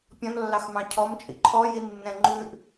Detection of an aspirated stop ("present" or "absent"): present